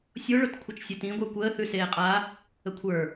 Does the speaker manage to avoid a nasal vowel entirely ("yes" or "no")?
no